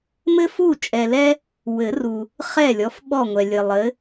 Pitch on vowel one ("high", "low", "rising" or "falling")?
high